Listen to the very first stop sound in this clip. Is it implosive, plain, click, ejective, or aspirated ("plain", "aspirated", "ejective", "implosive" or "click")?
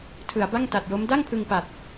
aspirated